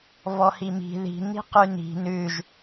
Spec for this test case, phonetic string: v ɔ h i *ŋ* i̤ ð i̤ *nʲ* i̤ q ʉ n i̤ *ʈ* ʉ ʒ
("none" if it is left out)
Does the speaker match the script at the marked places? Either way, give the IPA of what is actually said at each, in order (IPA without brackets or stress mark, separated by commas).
m, n, n